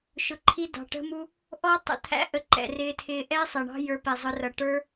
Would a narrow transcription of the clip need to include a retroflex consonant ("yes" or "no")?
yes